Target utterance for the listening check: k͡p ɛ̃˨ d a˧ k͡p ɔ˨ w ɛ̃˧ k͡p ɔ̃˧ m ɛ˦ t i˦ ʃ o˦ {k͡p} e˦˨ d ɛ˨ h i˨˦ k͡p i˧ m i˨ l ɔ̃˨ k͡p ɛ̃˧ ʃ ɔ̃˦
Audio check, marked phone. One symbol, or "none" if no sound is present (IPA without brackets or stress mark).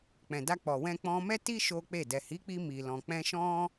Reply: k͡p